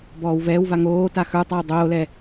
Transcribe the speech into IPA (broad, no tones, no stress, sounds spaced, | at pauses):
b ɔː w v ɛː w v a ŋ oː t a x ə˞ tˤ a w dˤ oː l ɛ